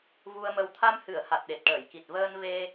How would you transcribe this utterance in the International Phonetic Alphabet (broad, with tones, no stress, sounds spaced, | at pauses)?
v u˧ ə̯ m ə˧ w t̪ʰ a˧ m h ɨ˨˩˨ ə̯ h a˨˩ t̚ ɗ e˨˩ t̚ ʈ əː˨˩˨ j k i˨˩ t̚ v əː˧ n v e˧